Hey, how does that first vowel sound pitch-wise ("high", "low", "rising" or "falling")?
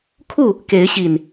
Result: falling